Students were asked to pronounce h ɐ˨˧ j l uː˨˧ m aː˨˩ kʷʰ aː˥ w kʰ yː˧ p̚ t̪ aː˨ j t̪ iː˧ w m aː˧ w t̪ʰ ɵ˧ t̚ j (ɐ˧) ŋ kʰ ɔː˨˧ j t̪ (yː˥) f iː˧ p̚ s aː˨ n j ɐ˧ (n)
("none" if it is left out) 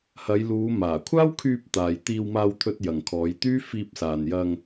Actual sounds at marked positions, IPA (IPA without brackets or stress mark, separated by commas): ɐ˨, yː˥, ŋ